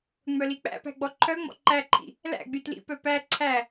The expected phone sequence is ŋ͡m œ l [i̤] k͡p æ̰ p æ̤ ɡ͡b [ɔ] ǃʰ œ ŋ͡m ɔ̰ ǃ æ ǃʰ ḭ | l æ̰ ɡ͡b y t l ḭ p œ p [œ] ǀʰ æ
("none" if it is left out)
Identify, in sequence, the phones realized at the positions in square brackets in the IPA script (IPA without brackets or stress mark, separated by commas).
i, ɔ, æ